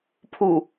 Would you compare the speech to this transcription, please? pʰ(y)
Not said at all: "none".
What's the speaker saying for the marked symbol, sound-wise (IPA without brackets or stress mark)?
u